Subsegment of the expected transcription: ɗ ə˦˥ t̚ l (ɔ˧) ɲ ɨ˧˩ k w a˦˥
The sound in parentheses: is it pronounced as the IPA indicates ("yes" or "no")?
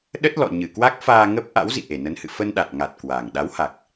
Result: no